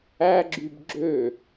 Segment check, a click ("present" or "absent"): present